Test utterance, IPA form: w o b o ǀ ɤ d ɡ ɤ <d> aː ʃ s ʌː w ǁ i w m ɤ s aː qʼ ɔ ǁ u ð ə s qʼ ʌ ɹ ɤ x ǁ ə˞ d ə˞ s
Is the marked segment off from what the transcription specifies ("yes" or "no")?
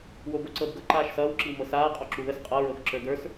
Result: yes